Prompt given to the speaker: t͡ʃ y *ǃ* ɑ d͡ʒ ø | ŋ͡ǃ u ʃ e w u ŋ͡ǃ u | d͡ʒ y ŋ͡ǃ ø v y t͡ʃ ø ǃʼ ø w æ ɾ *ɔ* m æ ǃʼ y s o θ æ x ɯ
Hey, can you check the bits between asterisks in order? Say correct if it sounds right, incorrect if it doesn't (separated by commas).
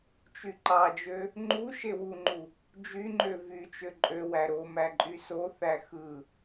correct, incorrect